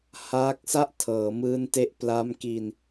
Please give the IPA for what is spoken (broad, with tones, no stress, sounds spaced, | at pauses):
h aː˦˥ k̚ s a˥˩ ʔ tʰ ɤː˩˦ m ɯː˦˥ n t e˦˥ ʔ p l a˦˥ m k i˧ n